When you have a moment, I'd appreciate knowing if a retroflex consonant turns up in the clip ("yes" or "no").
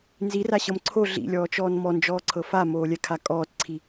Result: no